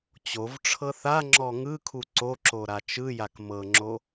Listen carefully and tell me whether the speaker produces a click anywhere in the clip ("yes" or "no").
yes